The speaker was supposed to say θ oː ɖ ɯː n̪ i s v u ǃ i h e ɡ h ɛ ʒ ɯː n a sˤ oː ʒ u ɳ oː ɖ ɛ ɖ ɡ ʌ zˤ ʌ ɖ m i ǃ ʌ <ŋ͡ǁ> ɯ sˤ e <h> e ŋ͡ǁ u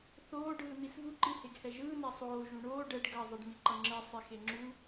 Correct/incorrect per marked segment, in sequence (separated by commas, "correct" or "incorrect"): correct, incorrect